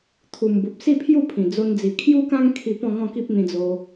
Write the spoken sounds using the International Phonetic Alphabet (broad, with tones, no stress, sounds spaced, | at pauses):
t̪ʰ u˨˩ m b u˨ p̚ s i˥˧ pʰ j u˥˧ pʰ ĩ˨˩ d͡z o˧ n d͡z i˨˩ kʰ j u˦ k ã˦ ŋ kʰ i˧ p ɔ̃˥˧ ŋ ɔ̃˥˧ k i˦ p̚ n̪ ĩ˧ d͡z o˧